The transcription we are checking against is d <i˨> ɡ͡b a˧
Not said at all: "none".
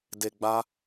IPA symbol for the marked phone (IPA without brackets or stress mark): e˨